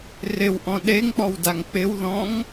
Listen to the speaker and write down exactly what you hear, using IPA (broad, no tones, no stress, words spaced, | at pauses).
rɪwʔɔ̃ ɗeŋk͡pɔwdaŋ k͡pɪwðɔ̃ŋ